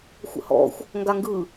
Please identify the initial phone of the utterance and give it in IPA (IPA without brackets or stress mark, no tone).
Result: xʷ